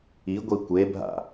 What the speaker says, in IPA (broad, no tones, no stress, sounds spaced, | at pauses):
i ɡʷ i kʷ e bʱ a̰